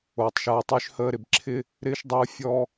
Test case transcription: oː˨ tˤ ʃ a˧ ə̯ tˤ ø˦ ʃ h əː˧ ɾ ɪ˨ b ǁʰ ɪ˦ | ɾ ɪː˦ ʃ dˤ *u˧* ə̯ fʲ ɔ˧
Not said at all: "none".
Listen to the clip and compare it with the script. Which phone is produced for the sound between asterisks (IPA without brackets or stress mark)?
u˧